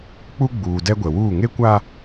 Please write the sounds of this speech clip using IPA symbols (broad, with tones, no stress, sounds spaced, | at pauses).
k͡p u˦ ɡ͡b uː˨ d ɛ˦ ɡʷ ɛ˨ w uː˦˨ ŋ e˦ kʷ a˦